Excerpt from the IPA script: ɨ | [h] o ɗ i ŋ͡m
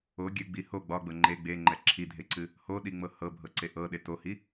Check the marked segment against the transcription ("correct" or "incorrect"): correct